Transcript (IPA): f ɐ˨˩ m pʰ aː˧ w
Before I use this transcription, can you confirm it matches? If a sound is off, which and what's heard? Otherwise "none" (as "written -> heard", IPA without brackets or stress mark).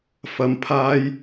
w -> j